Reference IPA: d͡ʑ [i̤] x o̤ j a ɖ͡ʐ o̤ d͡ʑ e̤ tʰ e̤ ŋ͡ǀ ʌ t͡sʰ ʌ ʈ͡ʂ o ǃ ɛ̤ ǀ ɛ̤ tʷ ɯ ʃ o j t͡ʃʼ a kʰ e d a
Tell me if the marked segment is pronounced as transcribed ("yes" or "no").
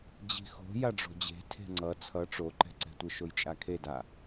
yes